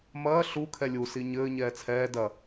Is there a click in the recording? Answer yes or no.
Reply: no